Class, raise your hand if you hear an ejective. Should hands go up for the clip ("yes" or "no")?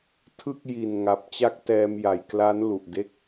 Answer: no